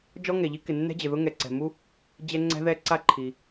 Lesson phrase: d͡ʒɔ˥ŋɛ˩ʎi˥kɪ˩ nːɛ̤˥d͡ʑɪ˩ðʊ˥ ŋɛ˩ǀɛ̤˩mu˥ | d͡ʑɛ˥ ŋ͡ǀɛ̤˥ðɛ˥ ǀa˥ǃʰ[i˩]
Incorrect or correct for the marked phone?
correct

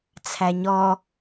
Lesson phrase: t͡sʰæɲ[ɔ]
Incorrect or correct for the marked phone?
correct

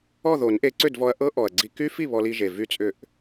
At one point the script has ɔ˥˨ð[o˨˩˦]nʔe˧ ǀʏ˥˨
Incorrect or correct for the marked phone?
correct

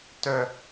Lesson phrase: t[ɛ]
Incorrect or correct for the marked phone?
incorrect: œ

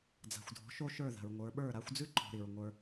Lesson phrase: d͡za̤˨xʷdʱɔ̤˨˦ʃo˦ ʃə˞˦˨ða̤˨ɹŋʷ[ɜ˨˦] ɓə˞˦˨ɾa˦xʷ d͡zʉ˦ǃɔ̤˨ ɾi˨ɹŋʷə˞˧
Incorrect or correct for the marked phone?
incorrect: ə˞˨˦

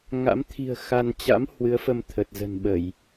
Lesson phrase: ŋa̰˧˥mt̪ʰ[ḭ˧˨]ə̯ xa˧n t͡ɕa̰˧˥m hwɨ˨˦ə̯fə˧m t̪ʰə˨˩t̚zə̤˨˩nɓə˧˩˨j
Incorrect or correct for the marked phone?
incorrect: i̤˨˩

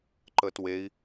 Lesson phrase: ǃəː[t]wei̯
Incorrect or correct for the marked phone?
correct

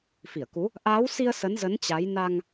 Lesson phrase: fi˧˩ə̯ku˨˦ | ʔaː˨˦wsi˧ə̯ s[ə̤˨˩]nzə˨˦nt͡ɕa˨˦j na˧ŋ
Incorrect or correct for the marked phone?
incorrect: ə˨˦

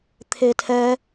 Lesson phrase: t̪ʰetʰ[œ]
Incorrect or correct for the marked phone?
incorrect: ɛ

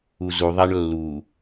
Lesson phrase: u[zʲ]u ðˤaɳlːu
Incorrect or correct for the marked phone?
incorrect: z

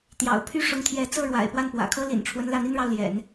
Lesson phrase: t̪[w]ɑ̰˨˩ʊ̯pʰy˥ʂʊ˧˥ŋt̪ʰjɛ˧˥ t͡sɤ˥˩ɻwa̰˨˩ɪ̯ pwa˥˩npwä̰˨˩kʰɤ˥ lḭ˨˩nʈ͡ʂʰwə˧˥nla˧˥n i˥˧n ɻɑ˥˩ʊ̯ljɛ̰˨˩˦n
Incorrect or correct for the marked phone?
incorrect: j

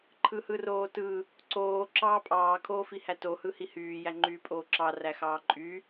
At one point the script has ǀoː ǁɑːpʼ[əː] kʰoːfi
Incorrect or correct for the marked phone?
incorrect: ɑː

